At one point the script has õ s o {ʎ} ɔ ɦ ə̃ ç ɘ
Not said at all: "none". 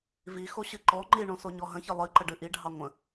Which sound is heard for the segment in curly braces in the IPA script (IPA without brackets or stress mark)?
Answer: ɲ